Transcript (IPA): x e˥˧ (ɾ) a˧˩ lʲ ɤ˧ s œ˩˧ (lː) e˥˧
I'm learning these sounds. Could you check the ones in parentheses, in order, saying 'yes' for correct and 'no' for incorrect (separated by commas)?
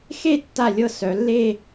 no, yes